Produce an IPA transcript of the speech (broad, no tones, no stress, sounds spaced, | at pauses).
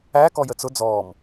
æ k ɔ j ə t͡s ʊ d͡z ɔː m